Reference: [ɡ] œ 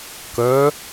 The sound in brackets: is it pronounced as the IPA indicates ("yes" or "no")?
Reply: no